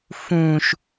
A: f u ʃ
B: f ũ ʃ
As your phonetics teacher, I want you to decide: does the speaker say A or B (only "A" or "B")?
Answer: B